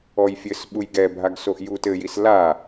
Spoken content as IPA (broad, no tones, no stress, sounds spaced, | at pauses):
ɔ j fʲ ɘ s ɓ u j ɡ ɛ bʱ a ɡ s o ʔ j u t ɘ j i s l a